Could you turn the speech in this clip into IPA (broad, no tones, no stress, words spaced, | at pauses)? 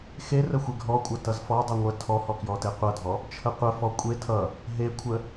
xer əxʷeɡʱɔkʷʼʌ tʌzfɔdˤʌ ŋʷə tʰɔhɔ kjɔteqʷʌdʱɔ | t͡ʃʰəqʷəfɔ kʷʼe tʰʌ | ɦekʷʰə